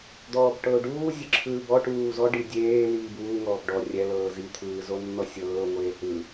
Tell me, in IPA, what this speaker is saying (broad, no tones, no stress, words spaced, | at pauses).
d̪ɔːbʈɤʊ̯ɖuː zʲɯǁʰɯːbɔ ʈuːzɔ ɖidʲeː liːbuː ŋɔːbɖɔ rʲɛ lɤːzi t̪ʰɯːzonːɔsʲɤː ŋʷeːhɯ